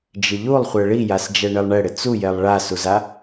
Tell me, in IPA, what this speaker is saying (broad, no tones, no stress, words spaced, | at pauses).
d͡ʒɪʎulˠχʷɛ ɭijasd͡ʒɛ ɳɪlˠɳɛɽɪ t͡sujɛlˠ ɭasuza